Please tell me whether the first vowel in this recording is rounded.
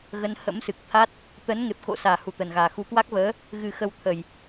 no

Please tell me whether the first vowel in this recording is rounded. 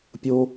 yes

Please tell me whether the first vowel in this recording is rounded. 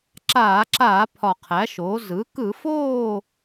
no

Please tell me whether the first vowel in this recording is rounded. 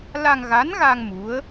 no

